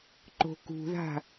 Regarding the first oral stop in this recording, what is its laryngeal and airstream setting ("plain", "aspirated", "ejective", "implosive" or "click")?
click